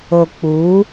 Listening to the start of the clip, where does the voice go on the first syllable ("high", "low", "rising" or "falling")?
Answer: low